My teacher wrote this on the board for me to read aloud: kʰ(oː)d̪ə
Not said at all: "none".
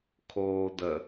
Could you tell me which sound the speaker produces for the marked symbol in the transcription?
oː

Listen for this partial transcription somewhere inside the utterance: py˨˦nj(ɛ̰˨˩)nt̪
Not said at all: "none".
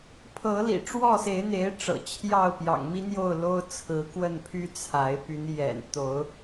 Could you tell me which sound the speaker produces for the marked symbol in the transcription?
ɛ̰˨˩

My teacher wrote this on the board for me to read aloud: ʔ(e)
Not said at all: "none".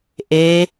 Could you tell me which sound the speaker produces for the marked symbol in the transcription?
e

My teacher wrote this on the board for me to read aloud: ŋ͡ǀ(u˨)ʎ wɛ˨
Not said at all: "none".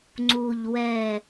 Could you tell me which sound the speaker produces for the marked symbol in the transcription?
u˨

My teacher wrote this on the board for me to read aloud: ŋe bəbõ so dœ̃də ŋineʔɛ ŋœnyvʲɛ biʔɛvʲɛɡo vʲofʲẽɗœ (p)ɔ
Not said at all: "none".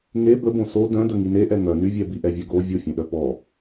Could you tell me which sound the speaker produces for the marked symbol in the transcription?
p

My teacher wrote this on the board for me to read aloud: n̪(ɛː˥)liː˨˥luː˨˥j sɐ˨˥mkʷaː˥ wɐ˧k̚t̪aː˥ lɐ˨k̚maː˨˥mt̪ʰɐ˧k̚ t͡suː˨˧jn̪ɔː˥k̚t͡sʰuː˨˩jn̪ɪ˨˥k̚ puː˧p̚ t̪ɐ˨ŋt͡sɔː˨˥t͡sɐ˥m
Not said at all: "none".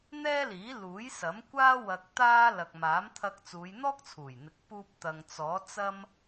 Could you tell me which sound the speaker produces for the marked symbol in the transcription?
ɛː˥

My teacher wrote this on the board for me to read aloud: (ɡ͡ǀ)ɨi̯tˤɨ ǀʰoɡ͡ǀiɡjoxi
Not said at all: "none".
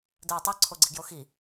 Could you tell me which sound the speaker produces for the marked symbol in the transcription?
d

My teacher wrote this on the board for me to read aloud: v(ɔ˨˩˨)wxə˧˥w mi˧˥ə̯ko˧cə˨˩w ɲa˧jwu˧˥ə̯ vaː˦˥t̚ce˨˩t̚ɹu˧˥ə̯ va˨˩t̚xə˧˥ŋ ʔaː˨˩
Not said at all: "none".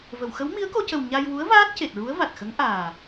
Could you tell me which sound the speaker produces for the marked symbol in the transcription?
ə˨˩˨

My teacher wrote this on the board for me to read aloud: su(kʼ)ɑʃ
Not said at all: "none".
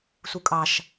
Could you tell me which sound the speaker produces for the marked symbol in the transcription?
kʼ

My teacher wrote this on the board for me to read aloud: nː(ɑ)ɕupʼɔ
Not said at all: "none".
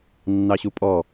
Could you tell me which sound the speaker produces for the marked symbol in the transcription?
ɑ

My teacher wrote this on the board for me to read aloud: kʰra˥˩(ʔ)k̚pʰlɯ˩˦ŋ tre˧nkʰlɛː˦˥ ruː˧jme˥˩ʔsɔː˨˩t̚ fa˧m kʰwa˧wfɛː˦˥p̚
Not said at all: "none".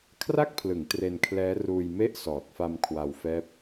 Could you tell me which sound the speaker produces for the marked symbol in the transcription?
none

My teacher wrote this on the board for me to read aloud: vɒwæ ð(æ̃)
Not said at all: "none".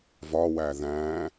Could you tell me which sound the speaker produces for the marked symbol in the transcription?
æ̃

